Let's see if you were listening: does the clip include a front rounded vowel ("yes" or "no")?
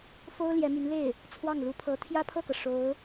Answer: yes